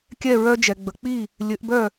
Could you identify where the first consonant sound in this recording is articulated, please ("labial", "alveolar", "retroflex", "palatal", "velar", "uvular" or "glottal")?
velar